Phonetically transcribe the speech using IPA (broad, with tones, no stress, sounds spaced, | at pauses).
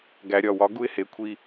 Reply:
ɡ æ˨ ɾʲ ɒ˦˨ w ɒ˦ ɡ u˦ ɪ̯ h e˨˦ kʷʰ i˦